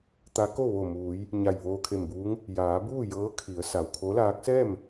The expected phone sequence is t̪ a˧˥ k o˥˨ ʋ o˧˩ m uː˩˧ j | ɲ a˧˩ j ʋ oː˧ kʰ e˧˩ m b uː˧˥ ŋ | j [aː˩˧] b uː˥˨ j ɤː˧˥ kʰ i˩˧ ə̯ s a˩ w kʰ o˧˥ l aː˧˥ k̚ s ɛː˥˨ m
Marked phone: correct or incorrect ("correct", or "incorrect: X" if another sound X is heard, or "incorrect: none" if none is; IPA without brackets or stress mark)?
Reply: correct